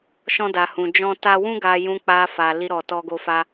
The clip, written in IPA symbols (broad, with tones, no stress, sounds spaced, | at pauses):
ʃ ɔ̃˦ d a˧ h ũ˧ d͡ʒ ɔ̃˦ t a˦ w ũ˦ ɡ a˧ j ũ˧ k͡p a˧ f a˨ l i˧ ɾ ɔ˨ t ɔ˧ ɡ o˧ f a˧